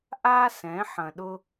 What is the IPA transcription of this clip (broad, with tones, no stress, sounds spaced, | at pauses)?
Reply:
ʔ a˧ s ɛ̃˨˦ ħ ɐ̃˨ ɗ ʊ˧